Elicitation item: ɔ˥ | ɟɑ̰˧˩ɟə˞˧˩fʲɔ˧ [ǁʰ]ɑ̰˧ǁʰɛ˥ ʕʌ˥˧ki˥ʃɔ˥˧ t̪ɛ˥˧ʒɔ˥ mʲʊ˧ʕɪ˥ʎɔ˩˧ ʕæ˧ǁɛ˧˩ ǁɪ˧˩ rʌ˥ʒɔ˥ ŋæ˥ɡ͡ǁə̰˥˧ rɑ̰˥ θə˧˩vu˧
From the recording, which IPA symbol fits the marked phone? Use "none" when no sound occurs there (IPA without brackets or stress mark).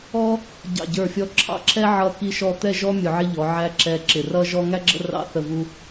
ǁʰ